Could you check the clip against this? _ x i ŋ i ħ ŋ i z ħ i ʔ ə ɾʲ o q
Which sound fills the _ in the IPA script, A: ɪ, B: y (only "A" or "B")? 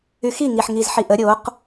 B